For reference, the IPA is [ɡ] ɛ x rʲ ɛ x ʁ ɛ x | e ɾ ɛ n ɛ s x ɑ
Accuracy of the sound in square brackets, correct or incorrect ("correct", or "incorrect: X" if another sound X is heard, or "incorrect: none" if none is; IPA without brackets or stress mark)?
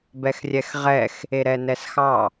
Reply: incorrect: b